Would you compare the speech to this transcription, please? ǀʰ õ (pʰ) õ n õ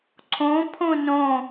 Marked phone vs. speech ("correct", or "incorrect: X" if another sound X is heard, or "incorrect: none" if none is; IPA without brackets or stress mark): correct